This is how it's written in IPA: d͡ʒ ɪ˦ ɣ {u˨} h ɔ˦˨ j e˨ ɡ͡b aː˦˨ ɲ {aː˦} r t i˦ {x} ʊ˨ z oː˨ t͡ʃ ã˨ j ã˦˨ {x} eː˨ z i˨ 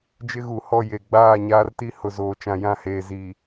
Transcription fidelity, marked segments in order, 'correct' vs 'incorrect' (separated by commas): correct, correct, incorrect, incorrect